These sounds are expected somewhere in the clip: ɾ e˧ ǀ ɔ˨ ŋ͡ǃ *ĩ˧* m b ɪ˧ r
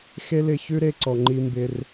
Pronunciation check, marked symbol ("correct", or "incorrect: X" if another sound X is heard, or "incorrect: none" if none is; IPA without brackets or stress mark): incorrect: i˧